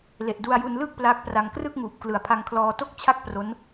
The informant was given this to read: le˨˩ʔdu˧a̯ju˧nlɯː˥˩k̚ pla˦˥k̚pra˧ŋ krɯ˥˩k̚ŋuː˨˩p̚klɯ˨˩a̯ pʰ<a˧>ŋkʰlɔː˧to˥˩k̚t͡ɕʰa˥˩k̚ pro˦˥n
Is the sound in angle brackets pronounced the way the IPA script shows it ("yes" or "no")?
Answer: yes